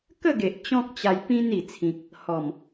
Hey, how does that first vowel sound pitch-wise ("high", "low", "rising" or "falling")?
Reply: falling